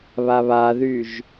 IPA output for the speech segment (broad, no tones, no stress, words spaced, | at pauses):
βaβaðyʒ